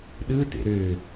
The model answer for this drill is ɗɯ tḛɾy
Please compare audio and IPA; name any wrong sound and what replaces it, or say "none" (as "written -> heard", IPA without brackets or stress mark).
y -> ø